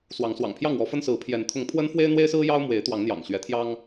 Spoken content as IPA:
s w ɑ˨˦ ŋ s w ɑ̰˨˩ ŋ pʰ j ɑ˥˨ ŋ w ɔ˨˦ f ə˦ n s ɹ̩˨˦ pʰ j ɛ˨˦ n t̪ʰ ʊ˨˦ ŋ pʰ w ə˦ n f w e˦ ɪ̯ n̪ w e˦ ɪ̯ s ɹ̩˦ j ɑ˦ ʊ̯ m w e˨˦ ɪ̯ t̪ w ɑ˨˦ ŋ n̪ j ɑ̰˨˩ ŋ ɕ ɥ ɛ˨˦ t̪ʰ j ɑ˦ ŋ

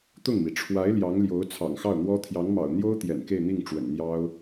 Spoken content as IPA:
t̪ ʊ˥˩ ŋ m i˩ ʈ͡ʂʰ w a˧˥ ɪ̯ l j ɑ˧˥ ŋ l j o˧˥ ʊ̯ t͡sʰ ɑ̰˨˩ ŋ x ɑ˥˩ ʊ̯ n̪ w ɔ˥ t̪ʰ j ɑ˧˥ ŋ m ɑ̰˨˩ ʊ̯ n̪ j o˥ ʊ̯ t̪ j ɛ̰˨˩ n k e˥˧ ɪ̯ n̪ i˥˩ ŋ ʈ͡ʂ w ə̰˨˩ n n̪ j ɑ˥ ʊ̯

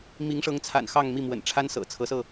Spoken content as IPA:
m i˧˥ ŋ ʂ ɤ˧˥ ŋ t͡sʰ a̰˨˩ n x ɑ˥˧ ŋ m i˥˩ m w ə̰˨˩ n ʈ͡ʂʰ a˥ n s ɤ̰˨˩ t͡sʰ ɤ˧˥ s ɤ˧

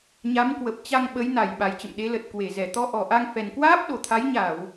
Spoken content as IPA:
ɲ a˨˦ m k w ə˨˩ p̚ t͡ɕ a˧ ŋ ɓ ə˨˦ j n a˧˩ j ɓ a˨˩ j t͡ɕ ə̰˧˨ m ɗ e˨˦ l ə˨˩ t̚ k w e˧˩ z ɛ˧˩ t̪ ɔ˧ ʔ ɔ˨˩ ʔ a˧ ŋ f ɛ˨˩ n k w aː˦˥ p̚ ɗ o˨˩ t̪ʰ a˨˦ j ɲ a˧˩˨ w

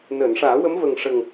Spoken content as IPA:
n əː˨˩˨ n ʂ aː˨˩˦ w ə˧˥ m v ə˨˩ ŋ ʂ ə˨˩ ŋ

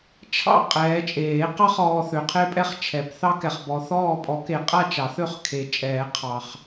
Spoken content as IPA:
t͡ʃʰ ɑ̰˥˨ qʼ ɛː˨˦ t͡ʃʼ eː˨˩˦ q ɑ˦ χ ɔː˨ θ ø˨˦ qʰ e˦ pʼ ɛ˥˨ χ t͡ʃʰ ɛ˨˩˦ p θ ɑ˦ k ɛ˨ χ b ɔ˨˦ θ ɔː˥˨ pʼ ɔ˨˩˦ k e˨ qʼ a˥˨ t͡ʃ ɑ˨˩˦ θ ø˥˨ χ kʰ e˨˩˦ t͡ʃʼ ɛː˨˩˦ qʰ ɑ˨ χ

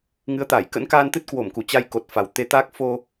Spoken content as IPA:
ŋ ɨ˨˦ ə̯ t̪ aː˧˩ j k ə̰˧˥ n k aː˧ n t̪ ɨ˦˥ t̚ k w o˧˩ m k u˧˩ t͡ɕ a˧ j k o˨˩ t̚ f a˨˩ w t̪ e˨˦ t̪ aː˦˥ k̚ f o˧

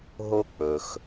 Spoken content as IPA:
ɦ o˥ k͡p ɵ˩ x

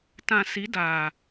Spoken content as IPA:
t ã˨ s i˨˦ d aː˨

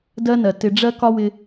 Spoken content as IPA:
d ɜ˥ n ɜ˩ t ɪ˧ ɖ͡ʐ ɜ˥ k ɒ˥ w ɪ˧

